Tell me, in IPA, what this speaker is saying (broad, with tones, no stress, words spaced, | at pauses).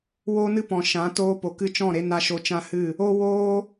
wo˦nɨ˦pɔ̃˨ ʃã˨˦ toː˧po˨ kɨ˧t͡ʃɔ̃˦˨ɾe˧ na˧ ʃo˧t͡ʃã˦hɨ˦˨ | o˦ woː˦